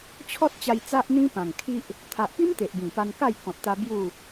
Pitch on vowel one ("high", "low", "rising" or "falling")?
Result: high